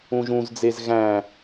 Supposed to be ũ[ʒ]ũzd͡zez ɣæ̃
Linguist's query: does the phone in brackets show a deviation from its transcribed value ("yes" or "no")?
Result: no